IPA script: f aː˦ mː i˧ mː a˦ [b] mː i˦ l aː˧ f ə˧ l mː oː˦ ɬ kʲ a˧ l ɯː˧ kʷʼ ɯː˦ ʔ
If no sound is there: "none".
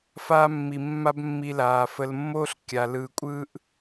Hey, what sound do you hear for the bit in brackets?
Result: b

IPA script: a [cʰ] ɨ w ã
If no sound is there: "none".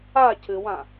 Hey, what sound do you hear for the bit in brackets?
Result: cʰ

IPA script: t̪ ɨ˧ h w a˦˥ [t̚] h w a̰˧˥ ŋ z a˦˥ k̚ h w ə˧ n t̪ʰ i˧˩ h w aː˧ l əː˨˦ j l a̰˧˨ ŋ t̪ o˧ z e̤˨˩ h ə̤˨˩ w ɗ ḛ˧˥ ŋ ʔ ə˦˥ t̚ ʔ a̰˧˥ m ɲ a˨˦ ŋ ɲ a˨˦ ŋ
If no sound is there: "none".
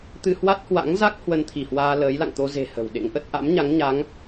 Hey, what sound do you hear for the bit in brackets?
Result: t̚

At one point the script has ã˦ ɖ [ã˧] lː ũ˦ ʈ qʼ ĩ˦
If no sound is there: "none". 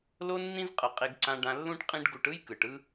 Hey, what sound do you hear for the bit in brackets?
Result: ã˧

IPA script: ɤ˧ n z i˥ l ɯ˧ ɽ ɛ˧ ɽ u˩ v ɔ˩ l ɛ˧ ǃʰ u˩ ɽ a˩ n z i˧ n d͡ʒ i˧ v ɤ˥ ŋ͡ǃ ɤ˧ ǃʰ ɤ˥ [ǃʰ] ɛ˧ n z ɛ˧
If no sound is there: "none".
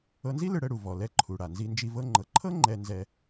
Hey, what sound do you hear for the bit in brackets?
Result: ŋ͡ǃ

